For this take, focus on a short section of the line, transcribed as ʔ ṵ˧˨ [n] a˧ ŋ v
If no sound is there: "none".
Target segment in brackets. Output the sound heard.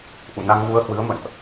n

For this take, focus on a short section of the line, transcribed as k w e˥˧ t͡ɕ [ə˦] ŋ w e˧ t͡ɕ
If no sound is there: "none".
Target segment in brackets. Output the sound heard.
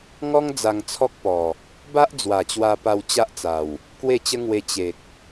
ə˦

